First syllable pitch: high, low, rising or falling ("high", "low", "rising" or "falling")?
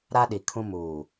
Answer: high